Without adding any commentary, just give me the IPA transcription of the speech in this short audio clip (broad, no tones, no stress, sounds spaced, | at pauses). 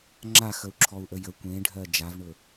ŋ͡ǁ a x ə u̯ ǁʰ ɔ u̯ ʔ ə j ə kʷ ẽ ɖʱ ɜ d͡ʒ a v ɳ ɵ